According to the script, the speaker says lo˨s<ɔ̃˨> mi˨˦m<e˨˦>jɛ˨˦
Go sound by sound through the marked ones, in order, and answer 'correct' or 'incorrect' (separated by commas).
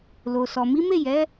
incorrect, incorrect